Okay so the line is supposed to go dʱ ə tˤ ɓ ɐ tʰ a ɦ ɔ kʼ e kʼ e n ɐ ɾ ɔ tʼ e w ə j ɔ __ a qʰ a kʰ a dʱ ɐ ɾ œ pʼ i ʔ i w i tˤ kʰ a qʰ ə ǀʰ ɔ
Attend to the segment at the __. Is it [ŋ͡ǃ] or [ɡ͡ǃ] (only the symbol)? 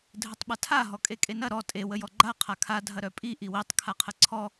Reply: ɡ͡ǃ